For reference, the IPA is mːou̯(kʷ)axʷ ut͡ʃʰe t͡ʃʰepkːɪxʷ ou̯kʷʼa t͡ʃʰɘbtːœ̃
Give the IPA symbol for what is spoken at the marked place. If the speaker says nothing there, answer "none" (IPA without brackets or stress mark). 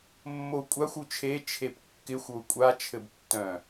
kʷʼ